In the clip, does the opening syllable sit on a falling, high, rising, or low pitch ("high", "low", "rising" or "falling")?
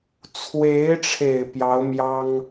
rising